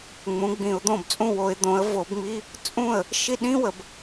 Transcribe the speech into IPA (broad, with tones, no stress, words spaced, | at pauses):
ŋ͡mũ˩˥ɡ͡bĩ˨˩˦ʊ̯d̪õ˥˩bt͡sʼũ˥˩ wo˨˩˦ɪ̯ d̪õ˩˥ə̯vo˨˩˦bŋ͡mi˧˥˧ | t͡sʼũ˥˩ə̯ | ʃi˥˩ɗĩ˥wə˨b